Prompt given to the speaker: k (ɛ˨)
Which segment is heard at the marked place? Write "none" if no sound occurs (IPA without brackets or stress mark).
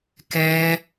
ɛ˦